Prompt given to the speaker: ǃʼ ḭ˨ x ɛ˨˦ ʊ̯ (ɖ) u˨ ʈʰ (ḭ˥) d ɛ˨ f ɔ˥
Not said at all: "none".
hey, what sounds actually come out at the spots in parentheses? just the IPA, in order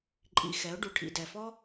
ɖ, ḭ˨

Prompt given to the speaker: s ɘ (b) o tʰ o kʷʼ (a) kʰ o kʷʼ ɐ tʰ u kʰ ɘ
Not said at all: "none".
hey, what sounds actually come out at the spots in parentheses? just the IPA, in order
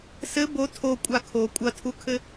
b, a

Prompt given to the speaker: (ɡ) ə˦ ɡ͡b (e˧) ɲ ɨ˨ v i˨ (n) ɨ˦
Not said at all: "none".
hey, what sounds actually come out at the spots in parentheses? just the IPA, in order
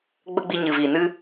ɡ͡b, i˧, n

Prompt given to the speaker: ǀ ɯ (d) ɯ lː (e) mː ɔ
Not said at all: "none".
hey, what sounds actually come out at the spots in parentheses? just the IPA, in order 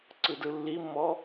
d, i

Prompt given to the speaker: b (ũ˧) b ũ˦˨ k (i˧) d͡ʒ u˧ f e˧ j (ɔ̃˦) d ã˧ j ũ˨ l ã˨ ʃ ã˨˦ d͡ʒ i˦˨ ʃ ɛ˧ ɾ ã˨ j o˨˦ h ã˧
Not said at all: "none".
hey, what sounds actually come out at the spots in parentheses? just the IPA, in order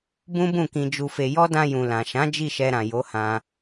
ũ˦, ĩ˧, ɔ˦

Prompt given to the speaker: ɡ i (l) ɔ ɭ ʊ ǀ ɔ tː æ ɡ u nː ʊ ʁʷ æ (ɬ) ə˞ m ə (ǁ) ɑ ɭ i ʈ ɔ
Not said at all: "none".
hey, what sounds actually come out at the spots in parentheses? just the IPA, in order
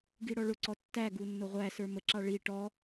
ɽ, s, ǁ

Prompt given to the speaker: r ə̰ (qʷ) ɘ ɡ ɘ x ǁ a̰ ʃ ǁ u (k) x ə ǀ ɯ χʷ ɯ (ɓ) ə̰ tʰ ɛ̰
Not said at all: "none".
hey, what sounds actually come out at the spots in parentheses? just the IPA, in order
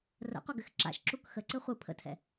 qʷ, k, pʰ

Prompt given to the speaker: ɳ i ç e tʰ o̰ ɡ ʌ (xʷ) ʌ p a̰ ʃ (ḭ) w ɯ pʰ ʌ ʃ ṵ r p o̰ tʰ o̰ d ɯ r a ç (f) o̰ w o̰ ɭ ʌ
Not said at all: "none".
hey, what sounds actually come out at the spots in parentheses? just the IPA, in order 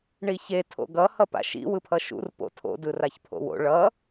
h, ḭ, pʰ

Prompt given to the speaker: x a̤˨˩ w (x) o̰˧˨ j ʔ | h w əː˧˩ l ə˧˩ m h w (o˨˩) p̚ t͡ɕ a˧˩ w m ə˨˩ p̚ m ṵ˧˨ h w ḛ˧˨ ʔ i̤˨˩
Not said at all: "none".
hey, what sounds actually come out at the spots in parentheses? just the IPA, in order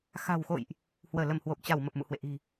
x, o˨˩

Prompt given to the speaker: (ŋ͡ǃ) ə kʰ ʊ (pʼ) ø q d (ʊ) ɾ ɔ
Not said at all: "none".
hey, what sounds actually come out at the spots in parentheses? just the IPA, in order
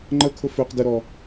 ŋ͡ǃ, f, ə

